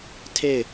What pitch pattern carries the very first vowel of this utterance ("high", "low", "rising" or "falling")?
falling